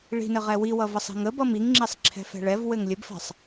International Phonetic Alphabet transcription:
ɭi̤nɘ ʁɛwiwʌ vəsˤi̤ŋəbʌm iŋŋ͡ǁisˤ ǁʰɛ̤fɛ̤ɭɛvwɘŋ lʲəbfɛ̤sˤ

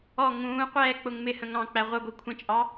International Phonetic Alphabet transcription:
ɔ ŋũːqʷɛː k͡pʊŋmɪhə̃ ŋɑ̃k͡pæ ʁʷʌɡʷi kʷʰə̃t͡ʃʼɑ

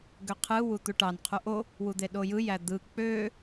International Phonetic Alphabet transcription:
ɡøqʰɯ wut̪uʈɑn qʰuʔo | wud̪eɗojɯ jæd̪ɯ k͡pø

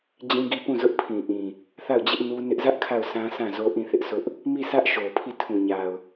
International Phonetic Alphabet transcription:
d͡ʑĩ˦ɡi˦ pũ˦˨zʊ˦ʔpʰĩ˨ʔĩ˨ | θa˦˨ʊ̯ d͡ʑɪ˦ʔ nu˦nɪ˦ʔ zä˦ʔ kʰa˦˨ʊ̯sã˦ sã˦˨zo˦ ʔĩ˦˨θɪ˦ʔsʰʊ˦ʔ | mi˦˨sʰä˦ʔ ʃo˨pʰi˦˨ tʰũ˨ɲa˨ʊ̯

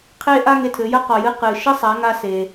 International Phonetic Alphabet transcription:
qʰe˥ ʔa˥ŋe˧tʰɘ˩˧jɐ˥ qɔ˩jɨ˧ qɨ˩ ʃɘ˥sˤa˩˧ŋa˧ se˩

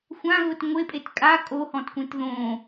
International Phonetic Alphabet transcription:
xʷãɣʊt ŋʷepʼet kʼa kʼohɔ̃tkʷẽt ðõ

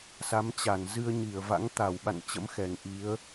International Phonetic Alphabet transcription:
sa˨˦mt͡ɕa˧˩n zɨ˧ə̯ɲi˧˩ə̯va̰˧˥ŋt̪a˧˩w ɓa̰˧˨nt͡ɕə̰˧˥m xɛ˨˩ŋ ʔi˨˦ə̯

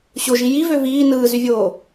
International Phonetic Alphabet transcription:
ɕoʒi jivø viː nɯːzyvʲoː

